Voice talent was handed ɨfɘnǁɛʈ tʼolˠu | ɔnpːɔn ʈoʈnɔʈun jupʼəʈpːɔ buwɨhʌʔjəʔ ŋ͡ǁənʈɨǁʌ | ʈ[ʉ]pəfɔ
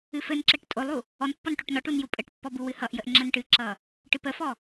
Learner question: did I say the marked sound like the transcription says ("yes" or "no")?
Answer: no